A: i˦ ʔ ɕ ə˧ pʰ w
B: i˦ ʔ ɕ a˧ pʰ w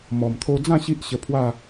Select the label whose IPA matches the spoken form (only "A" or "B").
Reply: A